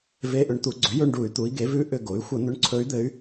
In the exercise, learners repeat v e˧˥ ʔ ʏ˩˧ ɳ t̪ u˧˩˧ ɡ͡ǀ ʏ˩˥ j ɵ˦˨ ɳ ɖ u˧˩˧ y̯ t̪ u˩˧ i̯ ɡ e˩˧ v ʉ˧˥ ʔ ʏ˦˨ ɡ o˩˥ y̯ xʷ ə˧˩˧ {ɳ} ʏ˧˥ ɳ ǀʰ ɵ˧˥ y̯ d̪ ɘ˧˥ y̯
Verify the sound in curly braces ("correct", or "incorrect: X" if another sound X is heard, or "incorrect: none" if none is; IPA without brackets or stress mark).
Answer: incorrect: n̪